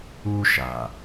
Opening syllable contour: high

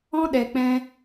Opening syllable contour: high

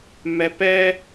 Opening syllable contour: low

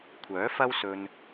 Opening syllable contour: rising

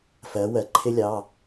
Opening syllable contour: rising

